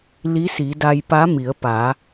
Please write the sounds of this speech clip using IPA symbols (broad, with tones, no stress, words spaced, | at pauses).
li˧˥si˩˧ da˧jpa˧˥mi˩˧ə̯ pa˩˧